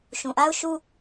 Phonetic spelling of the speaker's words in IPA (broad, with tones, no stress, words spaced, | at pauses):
ʃũ˨ʔa˦ʊ̯ʃu˦